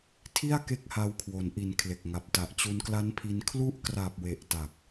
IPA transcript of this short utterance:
tʰ i˥˩ a̯ k e˥˩ k̚ h a˧ w kʰ w o˩˦ n ʔ i˨˩ n kʰ l e˨˩ k̚ ŋ a˨˩ p̚ t a˨˩ ʔ t͡ɕ u˧ n k l a˦˥ n pʰ i˧ n kʰ l u˦˥ ʔ k r a˨˩ p̚ w e˨˩ ʔ t a˨˩ k̚

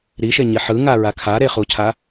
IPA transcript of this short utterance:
ɾ i ʃ e ɲ i ħ ɯ ŋ a ɹ a kʰ a ɾ e χ u cʰ a

